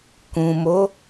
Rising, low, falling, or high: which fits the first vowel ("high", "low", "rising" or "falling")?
low